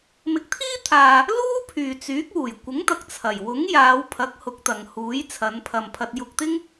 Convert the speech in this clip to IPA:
m ɪ˨˥ k̚ t̪ʰ iː˥ t̪ʰ aː˨ | l uː˥ pʰ yː˨ t͡s yː˨˥ k̚ w uː˨˩ j kʷ ɪ˨˥ ŋ t̪ ɐ˨ k̚ t͡sʰ ɐ˨˩ j w ʊ˨˥ ŋ j aː˨˧ w pʰ ɐ˨˥ k̚ h ʊ˨˥ k̚ t̪ ɐ˨ ŋ h uː˨˥ j t͡sʰ ɐ˨˧ n pʰ ɐ˨ m pʰ ɐ˧ t̚ j ʊ˧ k̚ t̪ ɪ˥ ŋ

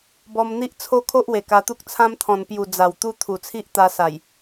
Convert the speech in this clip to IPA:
b ɔ˧ m n̪ i˦ ʔ t͡sʰ o˦ kʰ o˦ ʔ w e˨˩ k a˧ t̪ u˦ k̚ t͡sʰ ã˦ m t̪ʰ ɔ̃˨˩ n p j u˨˩ d͡z a˨˩ w t̪ u˦ t̪ʰ u˨˩ t͡sʰ i˦ ʔ t̪ a˧ s a˨˩ j

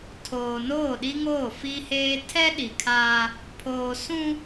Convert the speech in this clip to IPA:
tʰ oː˨ n oː˦˨ ɗ i˦ ŋ oː˦˨ f i˦ h eː˦ tʰ ɛ˦ ɗ i˨ kʰ aː˦ | pʰ oː˨ s ũ˦

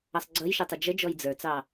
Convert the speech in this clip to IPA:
ʌ sˤ ɡ͡ǀ ʌ j ʃ ɪ tˤ ə d͡ʒ ə d͡ʒ ɔ j d͡z ə˞ t͡s ɑ

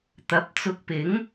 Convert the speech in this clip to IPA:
t̪ ɐ˨˥ p̚ t͡s ʊ˧ k̚ p ɪ˨˥ ŋ

